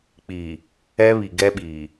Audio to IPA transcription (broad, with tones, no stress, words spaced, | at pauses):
k͡piː˨ | ɛ˦βi˨ɡɛ˦ɓiː˨